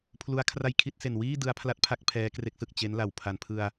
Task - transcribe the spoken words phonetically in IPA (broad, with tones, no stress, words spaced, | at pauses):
pʰlu˦˥a̯kʰra˥˩jkʰi˥˩t̚ se˨˩nwiː˥˩ dɯ˦˥a̯pʰla˦˥t̚pʰa˦˥k̚ pʰɛː˦˥kre˦˥k̚sɯ˨˩k̚ t͡ɕe˦˥nla˨˩w pʰa˨˩npʰɯ˧a̯